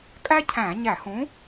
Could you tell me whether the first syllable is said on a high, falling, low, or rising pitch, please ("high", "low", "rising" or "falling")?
high